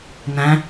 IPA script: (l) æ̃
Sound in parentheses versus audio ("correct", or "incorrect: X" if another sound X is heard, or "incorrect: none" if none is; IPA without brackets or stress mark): incorrect: n